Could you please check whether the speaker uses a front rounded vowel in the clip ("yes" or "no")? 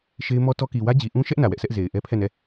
no